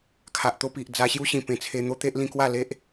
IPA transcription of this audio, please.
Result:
kʰ a˨ ʔ t̪ o˧ p i˨ ʔ d͡z a˧ ɕ j u˦ ɕ ĩ˨˩ p ẽ˧ t͡sʰ e˧ n̪ o˦ t̪ e˦ ʔ l ĩ˧ k w a˥˧ l e˦ ʔ

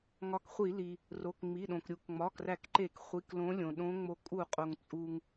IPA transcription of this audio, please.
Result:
ŋ ɒ˨˦ k χʷ i˧˩˧ l i˩ | r o˩˧˩ k ŋ͡m i˩˧˩ ɗ õ˩ k ɾʲ u˧˩˧ k ŋ͡m ɒ˩˧˩ k r æ˧˩˧ k ǃ e˧˩˧ k χʷ i˩˧˩ k l õ˨˦ lʲ õ˩ ɗ õ˨˦ ŋ͡m o˨˦ kʼ u˧˩˧ qʼ o˩ ŋ t͡sʼ u˩ ŋ

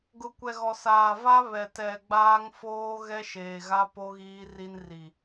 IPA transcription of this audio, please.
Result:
ɡ ʊ˨ kʷ ɛ˨ ɣ ɔ˨ s aː˨ v a˦ β ɛ˨ t ɛ˨ ɡ͡b aː˦ ŋ f oː˦ ɣ ɛ˦ ʃ eː˨ ɣ a˦ p o˦ ɣ iː˦ r i˦ n r i˨

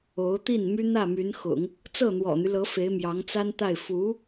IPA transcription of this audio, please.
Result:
o˧˥ ʊ̯ t̪ i˥˩ n m y˥ n̪ ä˥˩ m y˧˥ n x ʊ̰˨˩˦ ŋ | t͡s ɤ˥˩ n̪ w ɔ̰˨˩ n̪ y˦ l ɤ˧˥ f e˧˥ ɪ̯ m j ɑ˧˥ ŋ t͡s a˥ n t̪ a˥˩ ɪ̯ f u˧˥

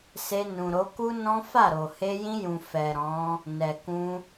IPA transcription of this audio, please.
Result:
s e˧ n ũ˨ ɾ o˨˦ k u˦ n ɔ̃˦ f a˦˨ ɾ o˨ h e˧ j ĩ˧ j ũ˨ f ɛ˨ ɾ ɔ̃˨˦ | n ɛ˨ k ũ˧

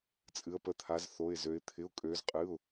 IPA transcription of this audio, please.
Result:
t͡sʼ ɨ˩˧ ə̯ p ə˩˧ t̪ʰ a˩˧ z θ o˩˧˩ ɪ̯ z ø˩˧ ɪ̯ t̪ʰ ɪ˩˧˩ ʊ̯ kʼ øː˩˧ z qʼ ɨː˩˧˩ ʊ̯

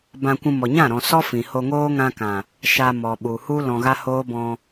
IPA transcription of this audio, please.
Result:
b ã˧ kʷ ũ˧ m ɔ˨ ɲ ã˦˨ ɾ ɔ̃˨ s ɔ˦ f ĩ˨ h o˧ ŋ oː˦ ŋ ã˧ k ã˨ | ʃ a˧ m ɔ˨ ɓ u˨ h u˦ l ɔ̃˧ ɣ a˦ h oː˦ b ɔ̃˧

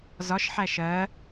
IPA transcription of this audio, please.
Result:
z ɒ ʃ ħ æ ʃ ɜ

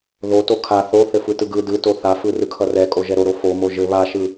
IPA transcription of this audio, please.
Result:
ð o t o kʰ a θ o θ ɘ f ɯ t ɯ ɡ ɯ d ɯ t o θ a f ɯ r ɯ kʰ ʌ r ɛ kʼ o ʒ ɛ ɾ o ɾ o f o m o ʒ ɘ β a ʃ ɯ

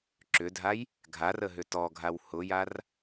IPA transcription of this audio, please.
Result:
ǁ ʏ dʱ a j | ɡʱ a r ə ɦ ʏ t ɔ ɡʱ a w h ʊ j a r

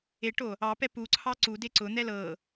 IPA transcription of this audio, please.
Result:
e ʈ o | ɑ p ɛ p u ǀʰ ɑ ǀ u d e ǀ ʊ n̪ ɛ l ɤ

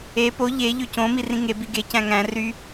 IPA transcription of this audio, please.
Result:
e p o ʎ e ʎ ø c õ m i r ĩ ŋ e b i ɡ e c æ̃ ŋ æ̃ r y

